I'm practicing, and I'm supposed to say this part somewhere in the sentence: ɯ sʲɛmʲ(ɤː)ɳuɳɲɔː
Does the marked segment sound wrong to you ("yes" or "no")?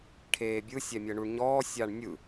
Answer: yes